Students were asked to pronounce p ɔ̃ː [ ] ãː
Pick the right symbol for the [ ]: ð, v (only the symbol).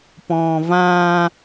v